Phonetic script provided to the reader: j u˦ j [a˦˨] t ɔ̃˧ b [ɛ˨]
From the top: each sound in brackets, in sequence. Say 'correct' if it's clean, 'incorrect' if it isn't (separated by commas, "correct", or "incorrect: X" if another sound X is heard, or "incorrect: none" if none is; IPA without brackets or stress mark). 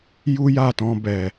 correct, correct